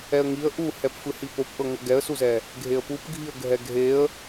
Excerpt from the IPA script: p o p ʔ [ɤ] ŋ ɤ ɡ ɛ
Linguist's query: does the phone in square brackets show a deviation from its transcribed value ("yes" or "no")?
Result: no